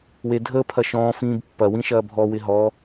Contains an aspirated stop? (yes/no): yes